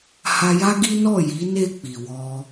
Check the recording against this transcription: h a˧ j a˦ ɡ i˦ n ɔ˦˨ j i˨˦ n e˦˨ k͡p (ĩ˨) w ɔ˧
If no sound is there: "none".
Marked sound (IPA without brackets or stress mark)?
i˨